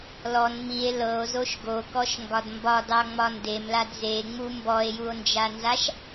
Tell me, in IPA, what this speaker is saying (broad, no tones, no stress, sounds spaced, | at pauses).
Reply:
l ɔ n m i e̯ l ɤ o̯ z o ʃ ɡ o k ɔ ʃ ŋ ɡ ɒ d m b ɒ d ɑ ŋ͡m ɒ n d e m l a d z e ŋ͡m u m b ɔ e̯ j u o̯ n d͡ʒ a n z a ʃ